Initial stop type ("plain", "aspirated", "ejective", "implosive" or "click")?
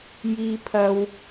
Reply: aspirated